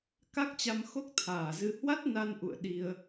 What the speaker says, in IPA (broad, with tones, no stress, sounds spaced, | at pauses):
k a˦˥ k̚ t͡ɕ a˧ m x o˦˥ k̚ t̪ʰ aː˨˩ z ɨ˧ h w a˦˥ t̚ n a˧ n ʔ ṵ˧˨ ə̯ ɗ i˧ ə̯